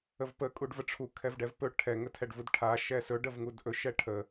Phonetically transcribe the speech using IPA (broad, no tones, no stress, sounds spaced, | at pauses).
ə v p ə kʼ u ɖ v ə ʈ͡ʂʰ u kʰ ɛ v ɖ ɛ v p ɵ ʈʰ ɛ ŋ ə tʰ ɛ ɖ v u d ʈʰ a ʃ ɛ s ɵ ɖ ə v ŋ u d ʔ ɵ ʃ ɛ ʈʰ ə